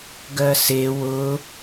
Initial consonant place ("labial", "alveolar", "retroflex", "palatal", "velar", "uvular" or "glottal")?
velar